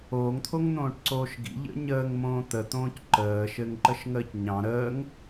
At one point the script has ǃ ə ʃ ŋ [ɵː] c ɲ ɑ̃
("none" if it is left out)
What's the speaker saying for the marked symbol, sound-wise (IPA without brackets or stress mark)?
əː